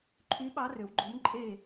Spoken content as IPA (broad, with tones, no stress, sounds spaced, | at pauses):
ǃʰ y˨˥ ɓ ɑ˨˥ r ø˩˧ w ɡ͡ǃ o˨˥ m ǃʼ e˥˨